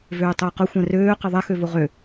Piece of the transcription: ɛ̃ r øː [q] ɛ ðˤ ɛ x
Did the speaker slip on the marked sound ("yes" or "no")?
no